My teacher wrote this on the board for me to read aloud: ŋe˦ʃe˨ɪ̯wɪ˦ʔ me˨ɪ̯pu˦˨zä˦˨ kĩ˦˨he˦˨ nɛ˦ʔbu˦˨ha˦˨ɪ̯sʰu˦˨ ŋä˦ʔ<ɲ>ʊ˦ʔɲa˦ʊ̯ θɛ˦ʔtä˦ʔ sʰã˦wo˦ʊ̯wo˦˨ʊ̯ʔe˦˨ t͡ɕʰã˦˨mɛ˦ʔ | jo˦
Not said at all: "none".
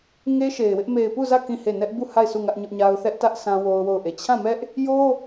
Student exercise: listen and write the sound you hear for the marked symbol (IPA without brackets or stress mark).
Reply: ɲ